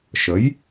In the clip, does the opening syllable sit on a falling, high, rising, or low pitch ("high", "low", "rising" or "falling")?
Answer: rising